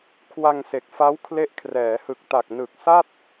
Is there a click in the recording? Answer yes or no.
no